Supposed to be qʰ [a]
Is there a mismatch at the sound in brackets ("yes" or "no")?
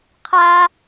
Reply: yes